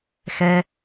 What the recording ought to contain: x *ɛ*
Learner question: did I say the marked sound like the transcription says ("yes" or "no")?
yes